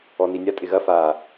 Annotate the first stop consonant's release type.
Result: ejective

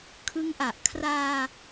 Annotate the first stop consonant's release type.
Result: aspirated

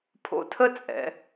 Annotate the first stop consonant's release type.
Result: aspirated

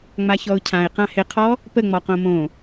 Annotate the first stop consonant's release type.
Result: aspirated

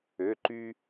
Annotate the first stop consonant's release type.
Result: click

